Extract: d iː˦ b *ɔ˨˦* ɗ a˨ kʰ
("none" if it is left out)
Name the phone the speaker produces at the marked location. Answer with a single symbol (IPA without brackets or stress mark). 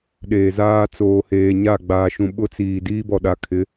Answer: ɔ˨